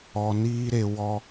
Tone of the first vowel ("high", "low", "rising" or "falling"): low